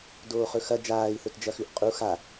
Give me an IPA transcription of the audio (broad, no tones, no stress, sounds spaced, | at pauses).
d oː χ ɵ x ɐ d͡ʒ aː i̯ θ ɵ t d͡ʒ ɐ x ʉ ʔ qʼ u x a